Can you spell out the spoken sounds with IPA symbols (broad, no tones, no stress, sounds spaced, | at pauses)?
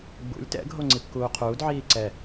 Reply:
ɡ͡b ṵ lʲ t ɛ̰ ɡʱ o ŋ͡ǀ i p k uː qʰ uː d ʕ iː ǀ ɛ